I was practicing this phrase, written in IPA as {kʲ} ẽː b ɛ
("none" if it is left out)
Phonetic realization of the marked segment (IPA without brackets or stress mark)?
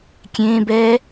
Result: kʲ